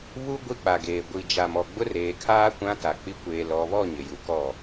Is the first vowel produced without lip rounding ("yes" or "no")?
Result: no